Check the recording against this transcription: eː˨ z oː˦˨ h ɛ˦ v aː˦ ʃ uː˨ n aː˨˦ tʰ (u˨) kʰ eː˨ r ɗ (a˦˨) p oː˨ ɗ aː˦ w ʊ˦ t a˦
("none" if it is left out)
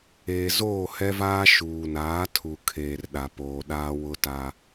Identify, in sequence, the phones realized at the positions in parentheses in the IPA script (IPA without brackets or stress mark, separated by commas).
u˨, a˨